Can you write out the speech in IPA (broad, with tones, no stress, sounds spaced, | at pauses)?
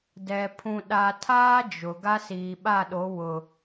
d ɛ˨ pʰ ũ˨ ɗ a˨ tʰ aː˦ d͡ʒ ʊ˨ ɡ a˦ s iː˨ ɓ a˦˨ ɗ o˨˦ w ʊ˨